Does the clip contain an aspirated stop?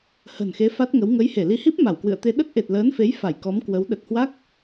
no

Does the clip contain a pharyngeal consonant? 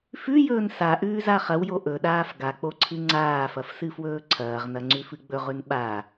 no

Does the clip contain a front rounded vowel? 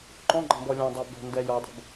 no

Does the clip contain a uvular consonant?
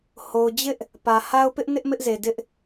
no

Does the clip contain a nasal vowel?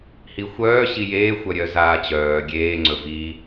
no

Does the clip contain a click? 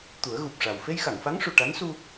no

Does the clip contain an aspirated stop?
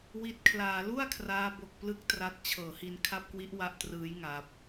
yes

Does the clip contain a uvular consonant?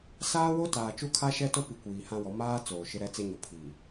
no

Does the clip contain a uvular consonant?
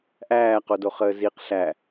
yes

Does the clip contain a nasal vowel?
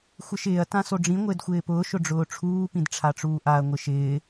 yes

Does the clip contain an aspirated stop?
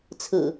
yes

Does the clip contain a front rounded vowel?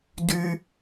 yes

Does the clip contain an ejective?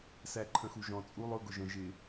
yes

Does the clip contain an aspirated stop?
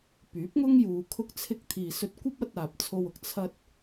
yes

